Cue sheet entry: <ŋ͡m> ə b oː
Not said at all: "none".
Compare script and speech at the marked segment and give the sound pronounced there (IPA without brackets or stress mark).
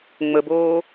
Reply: ŋ͡m